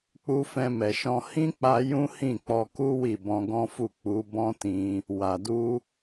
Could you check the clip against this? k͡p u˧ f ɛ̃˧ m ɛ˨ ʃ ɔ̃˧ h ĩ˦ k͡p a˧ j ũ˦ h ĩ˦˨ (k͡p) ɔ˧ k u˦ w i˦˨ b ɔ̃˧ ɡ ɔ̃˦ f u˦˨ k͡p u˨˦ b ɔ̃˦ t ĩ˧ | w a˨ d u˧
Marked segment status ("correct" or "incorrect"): correct